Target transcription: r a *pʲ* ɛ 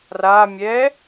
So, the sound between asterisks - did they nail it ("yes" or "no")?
no